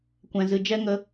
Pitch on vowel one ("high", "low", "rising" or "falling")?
low